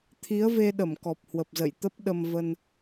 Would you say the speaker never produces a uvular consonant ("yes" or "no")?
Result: yes